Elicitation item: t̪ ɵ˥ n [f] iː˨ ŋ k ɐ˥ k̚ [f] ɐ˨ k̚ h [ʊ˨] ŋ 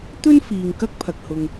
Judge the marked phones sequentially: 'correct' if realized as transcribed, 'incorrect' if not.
correct, incorrect: pʰ, correct

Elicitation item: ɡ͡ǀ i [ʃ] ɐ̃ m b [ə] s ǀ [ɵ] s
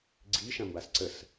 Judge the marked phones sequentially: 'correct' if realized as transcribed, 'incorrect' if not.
correct, incorrect: a, incorrect: ə

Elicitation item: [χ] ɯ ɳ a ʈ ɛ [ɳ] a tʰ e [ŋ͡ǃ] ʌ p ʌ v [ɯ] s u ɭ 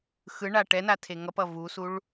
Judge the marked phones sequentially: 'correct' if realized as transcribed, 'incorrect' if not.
incorrect: x, incorrect: n, incorrect: ŋ, incorrect: u

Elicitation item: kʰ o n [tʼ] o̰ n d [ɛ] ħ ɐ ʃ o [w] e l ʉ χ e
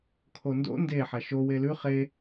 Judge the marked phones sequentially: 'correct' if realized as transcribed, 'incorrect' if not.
incorrect: d, incorrect: e, correct

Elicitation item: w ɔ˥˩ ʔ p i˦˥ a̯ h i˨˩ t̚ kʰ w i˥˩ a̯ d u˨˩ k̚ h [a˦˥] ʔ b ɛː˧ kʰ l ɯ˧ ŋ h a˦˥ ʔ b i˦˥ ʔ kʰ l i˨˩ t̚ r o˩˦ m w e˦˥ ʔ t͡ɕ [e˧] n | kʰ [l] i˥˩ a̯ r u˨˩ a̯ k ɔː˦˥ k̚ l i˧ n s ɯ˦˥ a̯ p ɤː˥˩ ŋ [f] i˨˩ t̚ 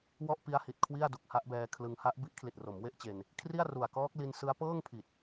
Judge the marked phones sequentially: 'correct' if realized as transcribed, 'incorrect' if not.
correct, correct, incorrect: r, incorrect: pʰ

